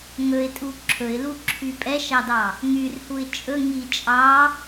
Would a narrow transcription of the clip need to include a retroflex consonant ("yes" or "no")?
no